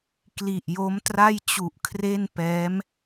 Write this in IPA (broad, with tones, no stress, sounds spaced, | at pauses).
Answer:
k l i˨˩ ʔ j o˦˥ m t r a˥˩ j t͡ɕ u˨˩ ʔ kʰ r e˥˩ n p ɛː˦˥ m